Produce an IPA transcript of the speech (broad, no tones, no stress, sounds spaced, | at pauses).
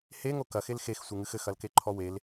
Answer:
h e ŋ o k ɐ x e l x e x sʷ ɨ ŋ ɨ x ɘ x ɐ l k e ǃʰ ɔ w e l